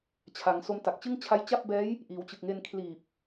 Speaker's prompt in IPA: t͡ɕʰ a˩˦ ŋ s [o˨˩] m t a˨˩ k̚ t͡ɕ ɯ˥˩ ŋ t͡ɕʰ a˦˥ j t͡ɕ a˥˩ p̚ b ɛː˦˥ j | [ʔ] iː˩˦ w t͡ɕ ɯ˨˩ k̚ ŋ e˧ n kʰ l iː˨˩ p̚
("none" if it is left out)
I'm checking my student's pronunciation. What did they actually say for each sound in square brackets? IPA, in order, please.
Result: o˧, ʔ

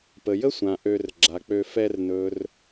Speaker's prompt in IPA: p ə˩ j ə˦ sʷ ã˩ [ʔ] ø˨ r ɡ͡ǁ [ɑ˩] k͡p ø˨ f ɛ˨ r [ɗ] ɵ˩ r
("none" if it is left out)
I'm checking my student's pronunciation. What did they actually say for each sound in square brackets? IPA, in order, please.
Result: ʔ, a˩, n

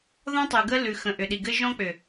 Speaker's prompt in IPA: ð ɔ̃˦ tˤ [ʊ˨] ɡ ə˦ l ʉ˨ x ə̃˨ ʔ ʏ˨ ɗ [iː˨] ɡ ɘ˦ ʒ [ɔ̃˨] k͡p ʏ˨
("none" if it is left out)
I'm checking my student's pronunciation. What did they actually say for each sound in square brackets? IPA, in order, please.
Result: ʉ˨, i˨, ɔ̃˦

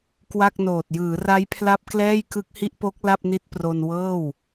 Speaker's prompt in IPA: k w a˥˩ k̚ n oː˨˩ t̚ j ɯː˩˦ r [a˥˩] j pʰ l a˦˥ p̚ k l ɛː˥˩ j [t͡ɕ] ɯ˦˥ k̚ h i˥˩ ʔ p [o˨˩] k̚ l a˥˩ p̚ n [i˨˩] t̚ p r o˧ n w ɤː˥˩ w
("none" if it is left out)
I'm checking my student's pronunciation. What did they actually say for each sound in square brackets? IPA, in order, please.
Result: a˦˥, k, o˦˥, i˦˥

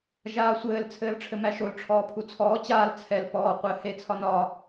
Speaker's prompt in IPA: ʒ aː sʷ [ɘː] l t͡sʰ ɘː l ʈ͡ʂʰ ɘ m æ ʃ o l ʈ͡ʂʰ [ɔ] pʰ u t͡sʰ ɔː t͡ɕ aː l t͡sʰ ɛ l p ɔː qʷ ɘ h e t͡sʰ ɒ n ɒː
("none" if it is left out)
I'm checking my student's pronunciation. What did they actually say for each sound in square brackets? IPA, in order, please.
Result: ɘː, ɔː

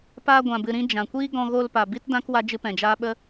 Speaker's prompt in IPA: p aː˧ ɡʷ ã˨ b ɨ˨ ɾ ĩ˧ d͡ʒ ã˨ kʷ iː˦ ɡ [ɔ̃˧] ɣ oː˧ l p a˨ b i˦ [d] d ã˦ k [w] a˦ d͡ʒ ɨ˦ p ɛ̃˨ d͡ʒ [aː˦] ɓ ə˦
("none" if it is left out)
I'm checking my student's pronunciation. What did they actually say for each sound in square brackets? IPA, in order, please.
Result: ɔ̃˧, t, w, aː˦

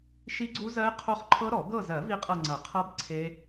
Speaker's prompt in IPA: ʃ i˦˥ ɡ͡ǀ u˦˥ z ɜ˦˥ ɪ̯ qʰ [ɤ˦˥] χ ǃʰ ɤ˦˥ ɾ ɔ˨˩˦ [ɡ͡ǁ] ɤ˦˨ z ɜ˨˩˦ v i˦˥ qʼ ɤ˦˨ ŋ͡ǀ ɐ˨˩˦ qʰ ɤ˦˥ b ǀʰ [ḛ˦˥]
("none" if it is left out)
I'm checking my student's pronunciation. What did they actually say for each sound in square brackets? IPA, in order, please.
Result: o˦˥, ɡ, e˦˥

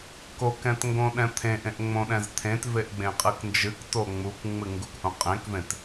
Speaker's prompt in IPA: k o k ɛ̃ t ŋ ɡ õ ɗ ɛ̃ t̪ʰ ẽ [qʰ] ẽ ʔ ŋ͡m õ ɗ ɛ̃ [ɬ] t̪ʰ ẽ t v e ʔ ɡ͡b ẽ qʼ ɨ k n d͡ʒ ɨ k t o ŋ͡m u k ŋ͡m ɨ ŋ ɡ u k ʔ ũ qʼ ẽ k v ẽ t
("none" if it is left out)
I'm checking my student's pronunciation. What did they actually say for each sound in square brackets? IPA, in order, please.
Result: ʔ, z

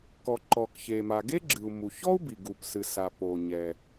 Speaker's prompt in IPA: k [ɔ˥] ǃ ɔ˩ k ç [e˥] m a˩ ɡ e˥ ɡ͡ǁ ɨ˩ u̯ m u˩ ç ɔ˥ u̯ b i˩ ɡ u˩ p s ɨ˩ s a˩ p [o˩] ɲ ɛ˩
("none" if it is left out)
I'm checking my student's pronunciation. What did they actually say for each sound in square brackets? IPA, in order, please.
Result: ɔ˩, e˩, o˩

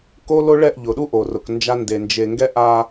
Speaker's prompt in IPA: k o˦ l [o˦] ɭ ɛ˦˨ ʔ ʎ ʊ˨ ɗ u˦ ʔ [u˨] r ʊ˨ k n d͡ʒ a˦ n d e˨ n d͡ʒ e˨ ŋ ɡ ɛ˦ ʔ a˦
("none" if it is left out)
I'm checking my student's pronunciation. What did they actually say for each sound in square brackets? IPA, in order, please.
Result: o˦, o˨

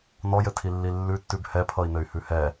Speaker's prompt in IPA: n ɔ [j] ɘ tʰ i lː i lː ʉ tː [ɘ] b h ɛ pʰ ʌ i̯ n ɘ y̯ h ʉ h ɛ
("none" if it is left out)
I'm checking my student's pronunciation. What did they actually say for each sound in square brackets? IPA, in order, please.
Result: j, ʉ

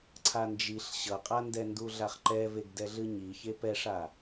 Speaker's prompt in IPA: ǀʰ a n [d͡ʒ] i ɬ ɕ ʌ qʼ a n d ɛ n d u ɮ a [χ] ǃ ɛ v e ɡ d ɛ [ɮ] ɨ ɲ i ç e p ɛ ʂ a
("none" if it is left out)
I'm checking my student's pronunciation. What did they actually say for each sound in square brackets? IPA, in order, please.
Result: d͡ʒ, χ, ɮ

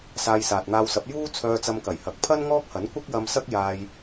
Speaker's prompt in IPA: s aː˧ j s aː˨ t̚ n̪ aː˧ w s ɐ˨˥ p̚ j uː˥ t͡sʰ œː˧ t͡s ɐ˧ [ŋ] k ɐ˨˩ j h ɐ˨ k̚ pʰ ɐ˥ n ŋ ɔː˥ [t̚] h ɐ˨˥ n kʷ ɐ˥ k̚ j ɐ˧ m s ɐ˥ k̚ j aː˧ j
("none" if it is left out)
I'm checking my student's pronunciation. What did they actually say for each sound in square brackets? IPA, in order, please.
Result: m, k̚

